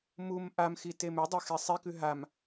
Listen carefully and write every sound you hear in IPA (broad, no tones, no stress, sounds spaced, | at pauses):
m u m ʔ a m x i t e m ʉ dˤ e x e sˤ e k ʉ ɦ a m